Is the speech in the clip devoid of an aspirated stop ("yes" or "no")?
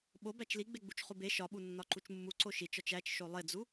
yes